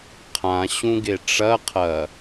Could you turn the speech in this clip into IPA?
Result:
qʰ ã ɕ ũ ɡ e ʈ͡ʂ ɐ qʰ ɐ

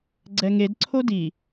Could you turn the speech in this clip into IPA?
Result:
ɡ͡ǀ ɛ ŋ e d ǀʰ o d i

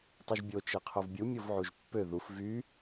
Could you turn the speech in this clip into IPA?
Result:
tˤ y ʒ bʲ o t͡ʃ e qʰ o v bʲ u mʲ o v ʕ u ʒ pː ø ð u f v y

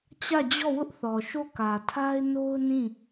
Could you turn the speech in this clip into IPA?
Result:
t͡ɕ ä˦˨ d͡ʑ ɔ˦˨ w ʊ˦ ʔ θ ɔ˨ ʃ o˦˨ k ä˨ tʰ a˦ ɪ̯ n o˦ ʊ̯ n ĩ˦˨

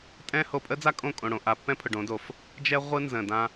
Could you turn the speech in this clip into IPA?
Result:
tʼ ɛ̃˦ h o˨ pʼ ə˦ d͡z a˦ kʼ õ˦˨ kʼ õ˨ ɽ õ˨ ʔ a˨ pː ɛ̃˦ pʰ ʊ˨ ɖ õ˨˦ d o˨ f | d͡ʒ ɛ˦ ʁʷ ɯ˦ n z ə̃˨ d ã˦

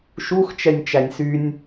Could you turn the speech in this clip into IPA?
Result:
ʃ u x t͡ʃ ɛ nʲ t͡ʃ æ nʲ s y nʲ

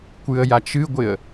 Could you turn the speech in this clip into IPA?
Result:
kʷ ɨ ə̯ j a t͡ʃ ɨ ɡʷ ɪ ə̯

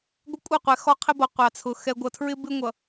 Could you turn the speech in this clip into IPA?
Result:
ɡʷ ɛ˦ kʷʼ ɛ˦˨ qʷ ɛ˨ x ɔ˦ qʰ ɪ˦ b ʌ˨ qʷ ɑ˨ t͡sʰ ʊ˨ x ɛ˨ ɡʷ ʌ˨ tʰ ɹ ɪ˦ b ɪ˦ ŋʷ ʌ˨

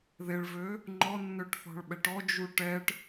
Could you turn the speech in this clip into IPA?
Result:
ð e ɭ v ø | ŋ͡ǃ ɔ nː ø ʈ θ ɔ̤ ɭ ɓ ɛ ʈ ɔ d͡ʒ u ʈ ɛ ʈ

